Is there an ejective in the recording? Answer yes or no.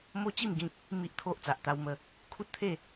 no